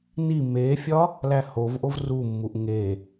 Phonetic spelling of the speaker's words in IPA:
n i m e fʲ ɒ | l æ h o v ʔ o v r u mː u ʔ ŋ e

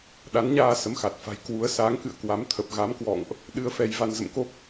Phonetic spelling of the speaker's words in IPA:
ɗ a˨˦ n ɲ aː˧ s ə˨˦ m x a˨˩ t̚ f a̤˨˩ j k w u˨˦ ə̯ s aː˨˦ ŋ k ɨ̰˧˨ ə̯ k w a˨˦ m t̪ʰ ə˨˩ p̚ ɣ a˨˦ m k w ɔ̰˧˨ ŋ ʔ | ɗ ɨ˧ ə̯ f ɛ˧ j v a˧ n z ə̰˧˨ m k o˦˥ p̚

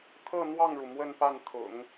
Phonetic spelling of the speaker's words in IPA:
t̪ʰ ɤ˥˧ n̪ w ɑ˥˩ ŋ ɻ u˩ m w ə˥˧ n p a˥˩ n t̪ʰ ʊ̰˨˩˦ ŋ

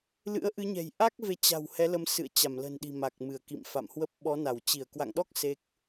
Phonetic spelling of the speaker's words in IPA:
l ɨ̰˧˥ ə̯ ʔ ɨ˨˦ ɲ ɛ̤˨˩ j ʔ a˦˥ k̚ v e˨˦ t͡ɕ a̤˨˩ w h ɛ˨˦ l ə˨˦ m s ɨ̰˧˨ ə̯ t͡ɕ a˧˩ m l ə̤˨˩ n ɗ i̤˨˩ m a˨˩ k̚ m ɨ˧˩ ə̯ k ḭ˧˨ m f a̰˧˨ m h w ə˦˥ p̚ ɓ ɔ˨˦ n a˧˩ w t͡ɕ i˧˩ ə̯ k w a̰˧˨ ŋ ɗ ɔ˦˥ k̚ s e˦˥ k̚

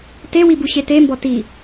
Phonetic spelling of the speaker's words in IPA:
t e w i b u ɕ e t e m b ɔ t i

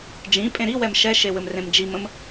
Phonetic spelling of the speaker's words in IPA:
d͡ʒ ĩ pʼ ẽ ɾ i w ɛ m ʃ ɛ ʃ e w ɘ m r ẽ m d͡ʒ i m ə̃ m

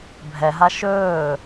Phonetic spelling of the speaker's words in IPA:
bʱ ɛ ɦ a ʃ ɵː

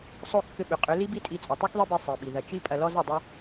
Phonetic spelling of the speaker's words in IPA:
sˤ o˦˨ kː ʏ˧ ɓ ʏ˨ qʼ ʏ˨˦ l i˦ b i˦ tʼ i˧ t͡sʼ ɐ˨ tˤ u˦ k ðˤ i˦ b i˧ sˤ i˨ ɓ i˨ ð ɐ˨ t͡ʃ i˦ pʼ ɐ˧ l ɔ˦ z ɐ˧ dˤ u˦

